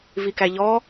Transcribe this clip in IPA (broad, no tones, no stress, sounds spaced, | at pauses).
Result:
v i k æ ʎ ɔ